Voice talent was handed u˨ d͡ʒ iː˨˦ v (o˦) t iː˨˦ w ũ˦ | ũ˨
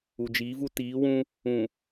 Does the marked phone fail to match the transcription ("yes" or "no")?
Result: yes